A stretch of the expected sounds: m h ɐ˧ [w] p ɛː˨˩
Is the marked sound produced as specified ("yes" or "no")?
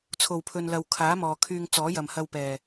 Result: yes